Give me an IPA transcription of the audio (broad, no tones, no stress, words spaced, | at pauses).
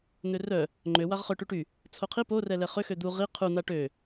n̪ørœ | ŋ͡ǃøwaʁ χœ ʈyʈy | t͡sʰoqʰi porɛ lɛχø xød̪u ʁi qʰun̪a ʈø